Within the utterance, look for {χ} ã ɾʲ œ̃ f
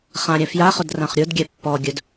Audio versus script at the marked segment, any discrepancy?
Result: no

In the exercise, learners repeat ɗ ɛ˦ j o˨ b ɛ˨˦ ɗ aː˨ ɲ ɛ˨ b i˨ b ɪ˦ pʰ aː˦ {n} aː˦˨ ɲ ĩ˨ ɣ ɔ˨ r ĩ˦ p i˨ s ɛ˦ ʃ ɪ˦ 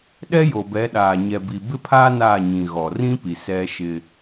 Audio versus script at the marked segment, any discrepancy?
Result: no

